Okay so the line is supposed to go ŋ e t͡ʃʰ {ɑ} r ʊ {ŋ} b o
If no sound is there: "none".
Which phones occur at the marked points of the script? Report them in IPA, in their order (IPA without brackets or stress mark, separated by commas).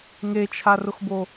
a, x